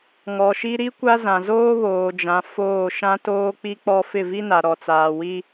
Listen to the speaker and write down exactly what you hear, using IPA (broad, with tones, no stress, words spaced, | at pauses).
ŋɔ˨ʃi˦ ɾi˦kʷa˦zã˨zoː˦ βoː˨d͡ʒã˨ foː˦˨ ʃã˦toː˦k͡pi˦k͡pɔ˦ fɪ˦˨vi˦na˨ ɾɔ˨t͡saː˨ wi˦